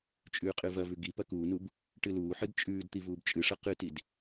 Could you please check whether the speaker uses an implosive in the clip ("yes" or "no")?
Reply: no